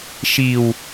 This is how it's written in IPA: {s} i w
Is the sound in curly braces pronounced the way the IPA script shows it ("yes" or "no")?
no